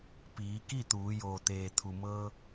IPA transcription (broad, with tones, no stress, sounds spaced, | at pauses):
p iː˩˧ k i˥˨ t̪ uː˩˧ j oː˩ t̪ eː˩ t̪ʰ u˩ m ɤː˧